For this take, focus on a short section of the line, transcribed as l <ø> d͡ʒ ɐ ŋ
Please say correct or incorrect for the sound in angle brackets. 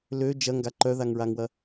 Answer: correct